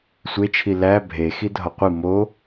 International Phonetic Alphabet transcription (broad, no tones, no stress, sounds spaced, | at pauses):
sʷ e t͡ʃʰ i l æ bʱ e x i dʱ ɒ qʷ i m o